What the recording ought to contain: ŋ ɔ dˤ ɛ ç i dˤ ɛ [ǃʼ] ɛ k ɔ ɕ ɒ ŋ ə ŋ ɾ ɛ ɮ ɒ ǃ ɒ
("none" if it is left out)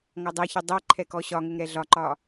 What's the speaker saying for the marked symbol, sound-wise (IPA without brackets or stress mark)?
ǃʰ